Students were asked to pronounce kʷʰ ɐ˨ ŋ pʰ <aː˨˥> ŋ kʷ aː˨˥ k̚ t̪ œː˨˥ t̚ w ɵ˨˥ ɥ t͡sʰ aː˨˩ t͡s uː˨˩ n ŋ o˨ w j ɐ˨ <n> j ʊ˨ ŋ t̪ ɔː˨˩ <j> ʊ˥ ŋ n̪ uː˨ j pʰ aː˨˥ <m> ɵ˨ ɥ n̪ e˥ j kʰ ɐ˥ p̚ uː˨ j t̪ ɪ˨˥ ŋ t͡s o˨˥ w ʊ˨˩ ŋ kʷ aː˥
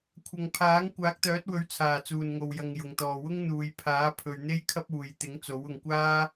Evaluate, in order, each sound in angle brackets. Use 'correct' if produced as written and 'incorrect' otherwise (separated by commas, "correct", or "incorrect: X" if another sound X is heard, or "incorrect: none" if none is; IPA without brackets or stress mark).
correct, incorrect: ŋ, incorrect: w, incorrect: pʰ